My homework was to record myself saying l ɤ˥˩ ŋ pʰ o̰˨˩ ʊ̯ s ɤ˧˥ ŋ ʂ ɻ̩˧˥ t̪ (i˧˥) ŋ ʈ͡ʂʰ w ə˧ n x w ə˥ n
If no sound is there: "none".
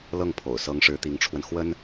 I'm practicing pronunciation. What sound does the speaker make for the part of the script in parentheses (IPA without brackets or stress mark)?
i˧˥